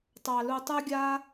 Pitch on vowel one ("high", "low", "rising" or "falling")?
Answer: low